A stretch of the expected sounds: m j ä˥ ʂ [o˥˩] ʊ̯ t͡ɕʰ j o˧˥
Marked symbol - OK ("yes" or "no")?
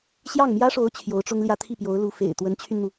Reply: no